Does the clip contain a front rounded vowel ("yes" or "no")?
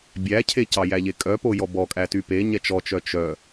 yes